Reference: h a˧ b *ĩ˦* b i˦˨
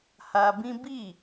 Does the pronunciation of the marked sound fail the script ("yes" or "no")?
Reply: no